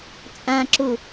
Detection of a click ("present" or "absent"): present